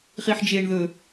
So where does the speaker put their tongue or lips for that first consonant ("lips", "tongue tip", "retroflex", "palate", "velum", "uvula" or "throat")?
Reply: uvula